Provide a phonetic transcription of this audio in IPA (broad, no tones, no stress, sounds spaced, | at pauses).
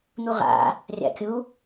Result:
n̪ u ʁ a̰ | rʲ a̰ kʲ u